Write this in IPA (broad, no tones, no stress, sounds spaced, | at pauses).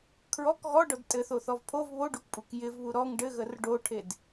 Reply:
kʰ ɹ ɔ k ɣ ɔ ɖ ɔ d tʼ ɘ θ o θ ɔ v pʰ o v β o ɖ u k pʼ u k j ɪ v β u ɾ ɔ ŋ ɖ ɘ ɣ ə r ɖ o ʈʰ e d